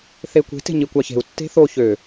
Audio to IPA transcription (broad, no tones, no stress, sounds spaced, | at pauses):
θ e kʷ e̤ t e̤ ɲ i kʷ ɑ ç e̤ u̯ tː e̤ θ o ç ø